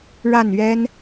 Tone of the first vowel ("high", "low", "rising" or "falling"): falling